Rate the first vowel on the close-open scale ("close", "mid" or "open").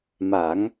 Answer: open